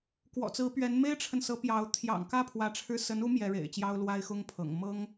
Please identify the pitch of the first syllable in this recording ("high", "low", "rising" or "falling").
low